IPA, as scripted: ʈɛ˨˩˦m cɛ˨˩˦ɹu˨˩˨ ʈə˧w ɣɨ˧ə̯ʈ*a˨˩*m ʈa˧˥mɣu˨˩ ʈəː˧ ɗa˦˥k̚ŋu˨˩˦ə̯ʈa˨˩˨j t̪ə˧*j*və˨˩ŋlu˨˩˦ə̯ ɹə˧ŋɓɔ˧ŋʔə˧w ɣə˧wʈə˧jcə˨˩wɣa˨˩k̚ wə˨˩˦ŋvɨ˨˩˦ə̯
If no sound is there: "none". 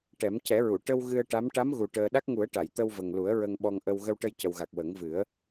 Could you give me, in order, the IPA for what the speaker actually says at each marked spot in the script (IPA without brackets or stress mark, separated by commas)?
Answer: a˧˥, w